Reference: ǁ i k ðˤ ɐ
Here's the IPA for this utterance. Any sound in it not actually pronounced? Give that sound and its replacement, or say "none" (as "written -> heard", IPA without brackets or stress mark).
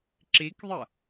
none